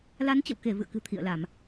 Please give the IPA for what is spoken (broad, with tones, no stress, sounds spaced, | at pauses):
l a˨˦ n t͡ɕ ə̰˧˨ w k e˧˩ v ɨ̰˧˨ ə̯ k ɨ̤˨˩ t̪ʰ ḭ˧˨ ə̯ l a˧˩˨ m